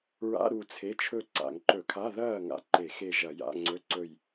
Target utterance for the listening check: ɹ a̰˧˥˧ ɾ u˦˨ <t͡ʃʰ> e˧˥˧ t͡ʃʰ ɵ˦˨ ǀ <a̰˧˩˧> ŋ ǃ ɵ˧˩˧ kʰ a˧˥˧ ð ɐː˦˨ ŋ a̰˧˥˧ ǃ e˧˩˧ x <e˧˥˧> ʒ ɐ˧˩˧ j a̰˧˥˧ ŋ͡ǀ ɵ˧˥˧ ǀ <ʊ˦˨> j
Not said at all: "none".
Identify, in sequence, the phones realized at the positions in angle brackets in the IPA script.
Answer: t͡sʰ, a̰˧˩˧, e˦˨, ɵ˦˨

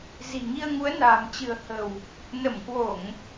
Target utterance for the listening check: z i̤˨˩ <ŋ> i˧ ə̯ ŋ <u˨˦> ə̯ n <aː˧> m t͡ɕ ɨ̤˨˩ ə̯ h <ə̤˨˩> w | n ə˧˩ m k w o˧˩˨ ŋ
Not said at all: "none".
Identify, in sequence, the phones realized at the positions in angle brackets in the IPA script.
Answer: ŋ, u˨˦, a̤ː˨˩, ə̤˨˩

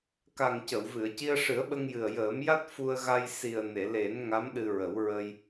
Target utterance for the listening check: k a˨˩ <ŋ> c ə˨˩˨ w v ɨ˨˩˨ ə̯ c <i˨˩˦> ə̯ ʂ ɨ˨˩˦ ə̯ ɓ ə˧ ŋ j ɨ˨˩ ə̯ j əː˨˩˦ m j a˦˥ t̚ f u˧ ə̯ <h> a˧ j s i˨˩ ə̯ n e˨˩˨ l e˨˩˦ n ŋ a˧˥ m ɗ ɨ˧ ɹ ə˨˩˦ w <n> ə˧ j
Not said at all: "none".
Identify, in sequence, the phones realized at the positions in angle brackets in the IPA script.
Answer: ŋ, i˧, ɣ, ɹ

